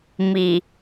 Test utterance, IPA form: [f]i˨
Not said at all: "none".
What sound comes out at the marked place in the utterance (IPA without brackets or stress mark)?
m